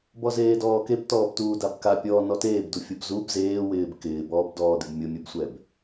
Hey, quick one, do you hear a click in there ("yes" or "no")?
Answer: no